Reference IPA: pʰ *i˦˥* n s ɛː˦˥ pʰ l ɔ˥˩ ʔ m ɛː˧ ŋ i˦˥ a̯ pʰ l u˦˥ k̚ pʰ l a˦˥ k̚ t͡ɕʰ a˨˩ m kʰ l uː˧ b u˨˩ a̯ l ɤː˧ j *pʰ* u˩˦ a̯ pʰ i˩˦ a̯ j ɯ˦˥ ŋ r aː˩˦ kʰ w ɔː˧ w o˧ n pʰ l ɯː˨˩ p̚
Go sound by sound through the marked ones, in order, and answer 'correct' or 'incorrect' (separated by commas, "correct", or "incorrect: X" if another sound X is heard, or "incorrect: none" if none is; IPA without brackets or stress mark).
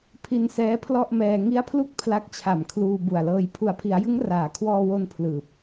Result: incorrect: i˧, correct